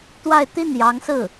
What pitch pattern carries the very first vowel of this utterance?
falling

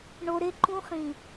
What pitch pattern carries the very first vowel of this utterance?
low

